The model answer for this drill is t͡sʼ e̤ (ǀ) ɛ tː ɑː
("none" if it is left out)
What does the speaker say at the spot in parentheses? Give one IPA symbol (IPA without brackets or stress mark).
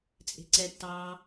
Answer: ǀ